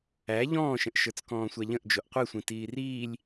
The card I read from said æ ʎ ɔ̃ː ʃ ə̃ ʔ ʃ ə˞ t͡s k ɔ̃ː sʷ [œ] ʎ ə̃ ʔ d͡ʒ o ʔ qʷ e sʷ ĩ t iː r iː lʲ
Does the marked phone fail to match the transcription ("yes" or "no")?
yes